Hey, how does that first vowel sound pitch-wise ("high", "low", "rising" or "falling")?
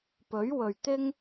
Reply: rising